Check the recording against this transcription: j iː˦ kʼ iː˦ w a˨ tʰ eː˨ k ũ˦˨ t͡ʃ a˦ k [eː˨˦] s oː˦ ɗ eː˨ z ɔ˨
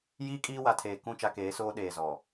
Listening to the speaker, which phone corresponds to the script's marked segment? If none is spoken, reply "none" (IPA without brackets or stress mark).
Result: eː˨˦